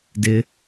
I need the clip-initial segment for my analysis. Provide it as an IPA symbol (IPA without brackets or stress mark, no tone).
d